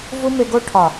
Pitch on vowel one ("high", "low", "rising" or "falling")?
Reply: high